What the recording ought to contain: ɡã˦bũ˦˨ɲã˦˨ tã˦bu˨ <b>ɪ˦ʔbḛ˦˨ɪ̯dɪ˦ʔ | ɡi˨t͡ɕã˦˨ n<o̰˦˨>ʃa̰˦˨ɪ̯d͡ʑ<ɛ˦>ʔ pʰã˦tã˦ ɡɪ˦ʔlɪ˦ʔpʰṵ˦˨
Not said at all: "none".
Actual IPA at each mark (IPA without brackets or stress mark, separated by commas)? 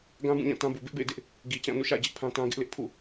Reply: b, ṵ˦˨, ɪ˦